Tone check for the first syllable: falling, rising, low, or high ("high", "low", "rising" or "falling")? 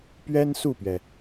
high